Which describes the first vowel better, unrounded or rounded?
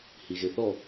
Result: unrounded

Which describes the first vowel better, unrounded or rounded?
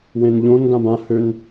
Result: unrounded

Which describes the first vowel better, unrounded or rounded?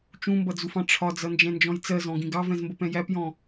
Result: rounded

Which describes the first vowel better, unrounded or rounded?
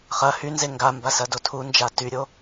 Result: unrounded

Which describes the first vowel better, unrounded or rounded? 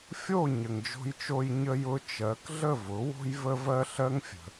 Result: rounded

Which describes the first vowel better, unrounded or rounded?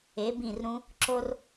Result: unrounded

